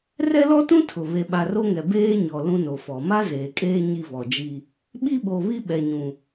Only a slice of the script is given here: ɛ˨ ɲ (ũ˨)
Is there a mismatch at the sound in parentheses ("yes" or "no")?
no